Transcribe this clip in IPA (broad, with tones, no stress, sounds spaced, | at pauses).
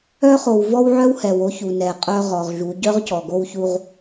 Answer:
œ˦ χ o˨ w v ɔ˦ w ʕ œ˦ w h ɛ˨ w o˦ ç u˨ n ɛ˨ qʼ œ˦ ʁ ɔ˨ ʁ ʒ u˨˦ ɟ œ˦ ʁ c ɔ˨ ɡ o˦ w ç u˦ ʁ